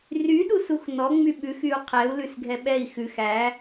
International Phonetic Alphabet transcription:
r y ɗ u s u x n ɔ ŋ͡m y ɓ ʉ x y u̯ qʰ ɛ u̯ l ʉ s ɡʱ ɛ ɓ ɛ i̯ x ʉ x æ

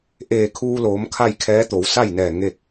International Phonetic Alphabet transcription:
ʔ eː˧˩ kʰ uː˧ l oː˩˧ m kʰ a˥˨ j kʰ ɛː˧˥ t̪ o˩˧ w s a˥˨ j n ɛː˧˩ ŋ e˥˨ k̚

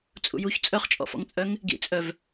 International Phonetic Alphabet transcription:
t͡sʼ ṵ j u ç t͡sʼ œ χ t͡ʃʼ ɔ̰ f ɔ̰ ŋ t͡sʼ œ ŋ | ɡ ḭ t͡sʼ œ v

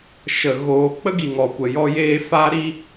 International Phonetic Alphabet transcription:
ʃ ə˨ ɣ oː˨ k͡p ə˦ ɡ i˨ ŋ ɔ˨ kʷ ə˨ j ɔ˧ j eː˧ f aː˦ ɾ i˦

